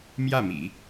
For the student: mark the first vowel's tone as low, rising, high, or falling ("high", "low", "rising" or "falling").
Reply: falling